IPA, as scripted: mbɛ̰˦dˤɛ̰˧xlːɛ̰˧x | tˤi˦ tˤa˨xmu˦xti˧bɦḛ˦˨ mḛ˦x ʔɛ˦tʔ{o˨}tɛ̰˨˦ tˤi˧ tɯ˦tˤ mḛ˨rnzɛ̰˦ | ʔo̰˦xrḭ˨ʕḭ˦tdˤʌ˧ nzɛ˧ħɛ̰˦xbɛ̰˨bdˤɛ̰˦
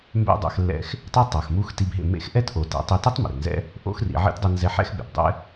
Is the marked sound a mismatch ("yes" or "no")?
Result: no